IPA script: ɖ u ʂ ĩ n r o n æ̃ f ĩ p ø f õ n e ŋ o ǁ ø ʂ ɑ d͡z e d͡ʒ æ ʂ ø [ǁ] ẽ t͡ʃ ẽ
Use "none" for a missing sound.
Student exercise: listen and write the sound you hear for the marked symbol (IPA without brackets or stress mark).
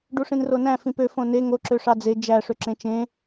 ǁ